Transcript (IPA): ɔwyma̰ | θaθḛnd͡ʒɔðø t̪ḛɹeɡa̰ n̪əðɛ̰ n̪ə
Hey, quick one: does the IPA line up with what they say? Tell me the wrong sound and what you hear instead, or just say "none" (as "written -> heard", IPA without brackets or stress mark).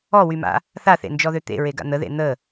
ɛ̰ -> ḛ